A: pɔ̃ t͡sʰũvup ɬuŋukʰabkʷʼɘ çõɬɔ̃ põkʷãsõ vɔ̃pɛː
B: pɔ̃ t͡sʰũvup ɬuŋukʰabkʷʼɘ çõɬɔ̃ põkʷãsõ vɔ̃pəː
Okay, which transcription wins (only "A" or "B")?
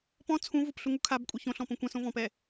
A